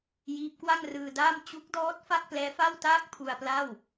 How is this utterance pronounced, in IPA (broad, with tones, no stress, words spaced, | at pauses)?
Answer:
jiː˦˥p̚kwa˥˩ŋrɯː˧daː˥˩m t͡ɕu˦˥k̚dɔː˦˥t̚ fa˥˩k̚plɛː˦˥fa˥˩wtaː˥˩k̚ pʰu˧a̯pla˥˩w